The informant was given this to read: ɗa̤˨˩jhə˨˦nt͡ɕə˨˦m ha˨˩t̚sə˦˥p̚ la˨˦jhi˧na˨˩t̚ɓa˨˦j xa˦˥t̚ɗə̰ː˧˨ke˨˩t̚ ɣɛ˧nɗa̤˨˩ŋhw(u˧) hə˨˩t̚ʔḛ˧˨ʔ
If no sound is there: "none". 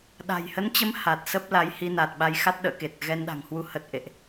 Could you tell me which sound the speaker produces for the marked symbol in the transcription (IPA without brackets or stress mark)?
u˧